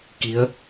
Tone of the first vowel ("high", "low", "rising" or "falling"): rising